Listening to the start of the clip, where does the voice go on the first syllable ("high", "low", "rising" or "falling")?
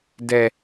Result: low